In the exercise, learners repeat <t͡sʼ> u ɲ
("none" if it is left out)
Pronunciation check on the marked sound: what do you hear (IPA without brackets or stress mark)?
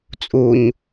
t͡sʼ